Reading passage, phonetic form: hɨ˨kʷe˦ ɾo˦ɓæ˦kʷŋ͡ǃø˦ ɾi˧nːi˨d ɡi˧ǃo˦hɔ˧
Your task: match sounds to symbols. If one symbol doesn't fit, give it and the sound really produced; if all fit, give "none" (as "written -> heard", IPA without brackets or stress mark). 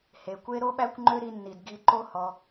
ɨ˨ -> e˨